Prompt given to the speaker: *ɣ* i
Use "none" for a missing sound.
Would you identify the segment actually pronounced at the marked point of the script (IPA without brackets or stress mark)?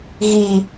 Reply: ɣ